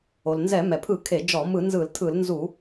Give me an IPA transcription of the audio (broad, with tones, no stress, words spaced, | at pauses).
o˩lnzɛ˧˩˧mɛ˩pʰɯ˧˩˧ kʰe˧˩˧d͡ʒɔ˧˩˧ mɯ˧˩˧nzɯ˧˩˧ltʰɯ˧˩˧lnzu˧˩˧